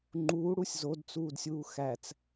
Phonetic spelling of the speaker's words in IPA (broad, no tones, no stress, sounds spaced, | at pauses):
ŋ͡ǃ uː ɽ u sʲ z o d t͡s uː d sʲ uː x æ t͡s